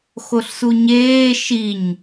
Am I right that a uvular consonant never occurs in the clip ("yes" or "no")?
yes